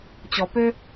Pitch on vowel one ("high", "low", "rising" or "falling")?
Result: low